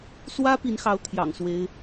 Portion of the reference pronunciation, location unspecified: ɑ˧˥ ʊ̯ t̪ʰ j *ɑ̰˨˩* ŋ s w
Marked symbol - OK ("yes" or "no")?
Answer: yes